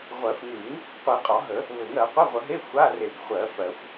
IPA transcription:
ʁʷ ɜ˨˩˦ f ŋ ʉ˨˩˦ ŋ | qʷ i˨˩˦ qʼ ɒ˨˩˦ ɦ ə˨˩˦ | β ɘ˨˩˦ ŋ ɜ˨˩˦ qʷ i˧˥˧ ʁʷ ə˨˩˦ ɦ e˧˥˧ xʷ a˧˥˧ r e˨˩˦ ɡ χʷ ɜ˨˩˦ f ɜ˨˩˦ xʷ

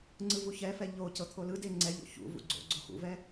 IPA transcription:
ŋ͡ǀ ɯ v u ç ɛ f ɛ ʎ o c ɤ t̪ʰ o l ɯ d e ŋ͡ǀ ɛ ʎ o̰ ç ṵ v ṵ ɡ͡ǀ o̰ ɡ͡ǀ o x ṵ v ɛ

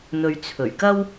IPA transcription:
n̪ ɵ˨ ɥ t͡sʰ ɵ˨˩ ɥ k ɐ˥ w

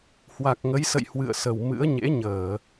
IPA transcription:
h w a˨˩ k̚ ŋ ə˨˦ j s ə̰˧˨ j h w ɨ̰˧˨ ə̯ s ə˨˩ w m ɨ̰˧˥ ə̯ ɲ ḛ˧˥ ɲ əː˧˩˨

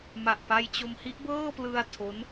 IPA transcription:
m a˨˩ ʔ p a˧ j t͡ɕ o˧ m h i˦˥ ʔ b ɤː˥˩ p l ɯ˧ a̯ tʰ o˦˥ n

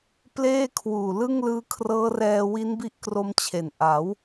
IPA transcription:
p l eː˥˩ kʰ w uː˨˩ l ɯ˥˩ ŋ l ɯː˦˥ kʰ r ɤː˦˥ r ɛː˧ w i˦˥ n b i˦˥ ʔ k r o˧ m t͡ɕʰ e˨˩ n ʔ a˩˦ w

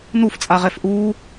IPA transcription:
n u f t͡sʼ a ʁ ɛ f ʔ u

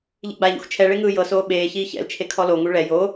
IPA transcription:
ʎ ḭ ɡ͡b a ʎ ṵ x t͡ʃʰ ɛ ɭ e ŋ ɯː j ɤ s oː ɓ eː ç iː ç ɛ̰ l t͡ʃʰ e kʰ ɔ l o ŋ u ɭ ɛ j o

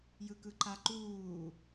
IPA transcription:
j ɯ k ɯ ǃ a ǃ uː

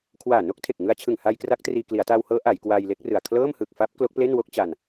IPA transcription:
kʰ w aː˨˩ n o˥˩ k̚ tʰ e˨˩ k̚ ŋ ɯ˧ a̯ t͡ɕʰ ɯ˨˩ ŋ h aː˧ j k r a˦˥ k̚ t r iː˧ k l i˩˦ a̯ t a˧ w h ɤː˦˥ ʔ a˩˦ j k w aː˧ j l e˦˥ k̚ r ɯ˨˩ a̯ kʰ l ɤː˥˩ m h ɯ˨˩ k̚ f a˦˥ p̚ k l o˦˥ k̚ p l e˥˩ n w o˥˩ k̚ t͡ɕ a˧ n

